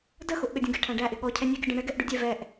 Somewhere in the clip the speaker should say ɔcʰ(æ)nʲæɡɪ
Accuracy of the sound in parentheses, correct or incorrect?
incorrect: ɛ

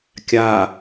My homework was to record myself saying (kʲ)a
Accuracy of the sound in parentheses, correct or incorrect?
correct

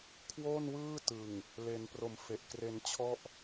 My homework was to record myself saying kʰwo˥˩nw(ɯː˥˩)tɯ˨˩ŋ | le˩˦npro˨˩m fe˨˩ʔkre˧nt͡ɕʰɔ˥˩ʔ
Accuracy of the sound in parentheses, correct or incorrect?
correct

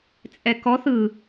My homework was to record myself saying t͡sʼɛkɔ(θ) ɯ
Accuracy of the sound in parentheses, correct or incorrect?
correct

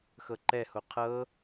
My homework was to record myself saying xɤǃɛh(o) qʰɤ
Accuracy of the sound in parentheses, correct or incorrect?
correct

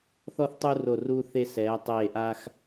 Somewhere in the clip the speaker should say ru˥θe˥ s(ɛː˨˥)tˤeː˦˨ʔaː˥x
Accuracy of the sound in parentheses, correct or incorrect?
correct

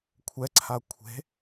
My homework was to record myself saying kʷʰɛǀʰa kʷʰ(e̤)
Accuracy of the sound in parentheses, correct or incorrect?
correct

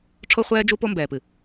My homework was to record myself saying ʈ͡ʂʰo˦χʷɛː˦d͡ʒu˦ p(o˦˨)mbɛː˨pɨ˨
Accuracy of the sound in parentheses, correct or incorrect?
incorrect: o˦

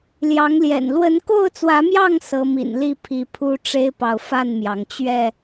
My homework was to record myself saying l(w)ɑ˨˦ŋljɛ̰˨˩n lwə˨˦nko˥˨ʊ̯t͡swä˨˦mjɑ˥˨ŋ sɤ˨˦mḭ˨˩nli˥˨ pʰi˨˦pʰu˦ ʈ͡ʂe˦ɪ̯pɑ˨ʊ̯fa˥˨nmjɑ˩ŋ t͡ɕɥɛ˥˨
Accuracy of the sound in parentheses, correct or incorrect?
incorrect: j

